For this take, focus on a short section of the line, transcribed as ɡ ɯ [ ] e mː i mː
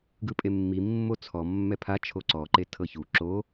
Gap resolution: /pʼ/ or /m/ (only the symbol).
pʼ